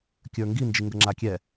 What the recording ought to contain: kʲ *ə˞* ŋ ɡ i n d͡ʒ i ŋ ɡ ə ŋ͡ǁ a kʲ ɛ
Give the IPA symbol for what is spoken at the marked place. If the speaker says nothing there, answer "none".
ə˞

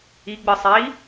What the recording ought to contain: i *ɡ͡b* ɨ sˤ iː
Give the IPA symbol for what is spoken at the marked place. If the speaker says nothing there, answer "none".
ɡ͡b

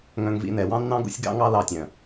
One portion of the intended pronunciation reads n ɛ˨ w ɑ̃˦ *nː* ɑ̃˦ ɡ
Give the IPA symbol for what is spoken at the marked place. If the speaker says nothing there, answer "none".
nː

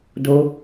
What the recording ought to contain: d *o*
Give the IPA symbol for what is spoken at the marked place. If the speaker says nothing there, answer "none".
o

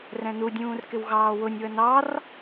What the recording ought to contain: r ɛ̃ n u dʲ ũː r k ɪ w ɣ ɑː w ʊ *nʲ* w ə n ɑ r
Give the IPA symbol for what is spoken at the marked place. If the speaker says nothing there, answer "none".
nʲ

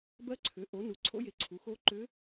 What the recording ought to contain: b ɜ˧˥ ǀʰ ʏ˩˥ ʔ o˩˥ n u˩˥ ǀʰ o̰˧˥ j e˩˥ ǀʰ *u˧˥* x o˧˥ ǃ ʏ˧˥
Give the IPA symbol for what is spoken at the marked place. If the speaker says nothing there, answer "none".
u˩˥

